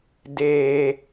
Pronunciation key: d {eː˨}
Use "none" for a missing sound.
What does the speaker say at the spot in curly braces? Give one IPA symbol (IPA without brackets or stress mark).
eː˦